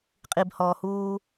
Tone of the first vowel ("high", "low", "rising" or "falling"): low